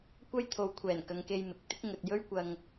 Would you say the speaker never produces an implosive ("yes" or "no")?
yes